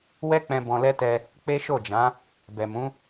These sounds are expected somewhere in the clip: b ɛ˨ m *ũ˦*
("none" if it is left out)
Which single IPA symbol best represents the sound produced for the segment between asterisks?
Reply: ũ˨˦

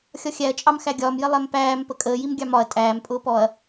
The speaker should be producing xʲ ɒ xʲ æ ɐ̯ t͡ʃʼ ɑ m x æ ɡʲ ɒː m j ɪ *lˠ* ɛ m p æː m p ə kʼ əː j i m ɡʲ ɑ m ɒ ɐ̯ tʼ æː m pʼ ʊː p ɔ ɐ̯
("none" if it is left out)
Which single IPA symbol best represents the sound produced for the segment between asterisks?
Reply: lˠ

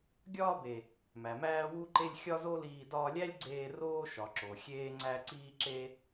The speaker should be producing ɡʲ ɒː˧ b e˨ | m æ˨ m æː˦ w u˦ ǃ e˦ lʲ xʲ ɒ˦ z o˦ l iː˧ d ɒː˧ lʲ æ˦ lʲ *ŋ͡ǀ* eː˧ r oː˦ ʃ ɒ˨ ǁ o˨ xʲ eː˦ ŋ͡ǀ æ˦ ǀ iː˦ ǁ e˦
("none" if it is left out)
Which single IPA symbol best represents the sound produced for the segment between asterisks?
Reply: ɡ͡ǀ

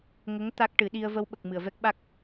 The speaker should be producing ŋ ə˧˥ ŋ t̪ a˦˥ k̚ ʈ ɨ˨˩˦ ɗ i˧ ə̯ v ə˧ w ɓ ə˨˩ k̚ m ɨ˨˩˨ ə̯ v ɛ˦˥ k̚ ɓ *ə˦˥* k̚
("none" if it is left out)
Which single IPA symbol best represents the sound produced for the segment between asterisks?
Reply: a˦˥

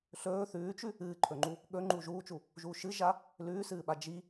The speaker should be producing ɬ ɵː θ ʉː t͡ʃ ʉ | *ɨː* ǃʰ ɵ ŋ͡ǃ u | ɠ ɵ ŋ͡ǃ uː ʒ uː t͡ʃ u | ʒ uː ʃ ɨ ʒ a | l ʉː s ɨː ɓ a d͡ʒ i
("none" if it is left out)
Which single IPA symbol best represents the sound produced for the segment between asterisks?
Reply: ɨː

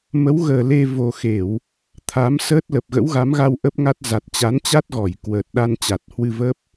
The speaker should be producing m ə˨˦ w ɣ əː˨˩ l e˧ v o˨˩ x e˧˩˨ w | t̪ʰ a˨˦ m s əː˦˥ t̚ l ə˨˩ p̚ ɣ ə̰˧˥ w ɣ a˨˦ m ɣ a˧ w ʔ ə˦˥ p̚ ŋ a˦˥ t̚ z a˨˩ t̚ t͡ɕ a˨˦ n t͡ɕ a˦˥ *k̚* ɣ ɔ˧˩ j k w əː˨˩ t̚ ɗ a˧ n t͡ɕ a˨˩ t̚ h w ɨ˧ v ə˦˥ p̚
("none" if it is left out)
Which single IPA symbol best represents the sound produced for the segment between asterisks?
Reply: t̚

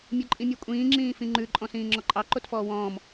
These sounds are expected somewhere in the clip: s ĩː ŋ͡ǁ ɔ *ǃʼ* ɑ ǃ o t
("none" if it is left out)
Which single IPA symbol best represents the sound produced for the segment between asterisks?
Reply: ǃʼ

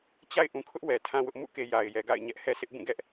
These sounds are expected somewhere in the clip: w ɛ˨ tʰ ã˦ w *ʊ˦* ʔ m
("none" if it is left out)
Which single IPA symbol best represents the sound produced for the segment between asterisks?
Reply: ʊ˦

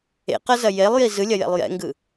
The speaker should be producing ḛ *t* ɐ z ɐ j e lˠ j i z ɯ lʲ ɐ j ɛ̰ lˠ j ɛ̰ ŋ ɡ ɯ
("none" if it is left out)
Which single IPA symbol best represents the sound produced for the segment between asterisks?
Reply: q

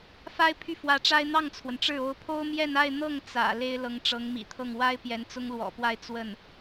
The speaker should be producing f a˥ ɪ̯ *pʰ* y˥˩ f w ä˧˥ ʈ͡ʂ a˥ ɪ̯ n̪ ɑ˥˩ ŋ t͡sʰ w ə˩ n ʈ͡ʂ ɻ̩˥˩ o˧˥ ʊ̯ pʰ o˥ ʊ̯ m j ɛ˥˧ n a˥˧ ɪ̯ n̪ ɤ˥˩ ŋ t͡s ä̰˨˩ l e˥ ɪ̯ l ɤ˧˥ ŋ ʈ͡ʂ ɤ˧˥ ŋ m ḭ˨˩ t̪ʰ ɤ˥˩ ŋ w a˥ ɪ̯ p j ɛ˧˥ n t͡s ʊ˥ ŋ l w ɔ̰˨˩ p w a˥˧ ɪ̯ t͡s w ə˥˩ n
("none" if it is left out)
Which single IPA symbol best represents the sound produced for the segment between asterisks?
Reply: pʰ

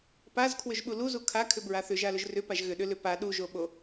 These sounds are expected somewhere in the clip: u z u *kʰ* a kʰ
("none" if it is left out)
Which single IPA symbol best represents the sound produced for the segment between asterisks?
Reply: kʰ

